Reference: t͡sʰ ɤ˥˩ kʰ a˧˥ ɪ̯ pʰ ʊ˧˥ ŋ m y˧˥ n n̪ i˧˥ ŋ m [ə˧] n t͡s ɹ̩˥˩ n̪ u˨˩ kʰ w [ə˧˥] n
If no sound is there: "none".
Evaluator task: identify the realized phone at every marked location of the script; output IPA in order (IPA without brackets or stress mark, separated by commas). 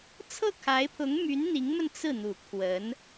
ə˧, ə˧˥